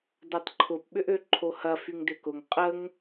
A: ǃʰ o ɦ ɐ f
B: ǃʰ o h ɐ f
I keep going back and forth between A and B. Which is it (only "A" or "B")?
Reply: B